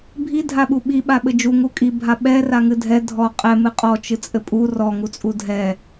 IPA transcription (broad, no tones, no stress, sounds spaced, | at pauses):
bʱ i dʱ a ɓ u ɓ i ɓ a ɓ ɘ d͡ʒ u ŋ u kʼ i bʱ a ɓ ɛ r a ŋ ɨ dʱ ɛ dʱ ɔ qʼ ɛ m ɨ qʼ ɔ t͡ʃ ɨ t͡sʼ ɘ pʼ u r ɔ ŋ u t͡sʼ u dʱ ɛ